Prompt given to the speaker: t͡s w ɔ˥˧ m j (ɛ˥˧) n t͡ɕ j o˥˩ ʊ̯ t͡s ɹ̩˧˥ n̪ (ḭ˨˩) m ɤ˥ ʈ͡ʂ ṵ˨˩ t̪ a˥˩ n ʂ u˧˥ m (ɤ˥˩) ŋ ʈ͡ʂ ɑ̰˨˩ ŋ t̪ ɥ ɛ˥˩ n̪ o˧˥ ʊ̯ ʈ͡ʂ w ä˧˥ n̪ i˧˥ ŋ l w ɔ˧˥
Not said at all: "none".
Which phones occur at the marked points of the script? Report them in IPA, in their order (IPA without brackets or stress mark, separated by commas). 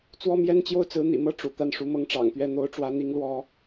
ɛ˥˧, ḭ˨˩, ɤ˥˩